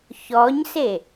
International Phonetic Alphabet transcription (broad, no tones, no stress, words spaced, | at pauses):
çɔɲse